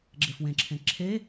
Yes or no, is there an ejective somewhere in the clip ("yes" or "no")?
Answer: no